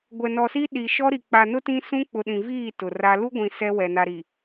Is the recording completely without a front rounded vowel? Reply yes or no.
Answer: yes